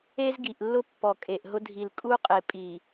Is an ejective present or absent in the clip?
present